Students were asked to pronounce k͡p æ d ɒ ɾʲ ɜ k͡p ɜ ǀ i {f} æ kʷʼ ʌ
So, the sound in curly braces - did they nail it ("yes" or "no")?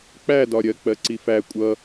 yes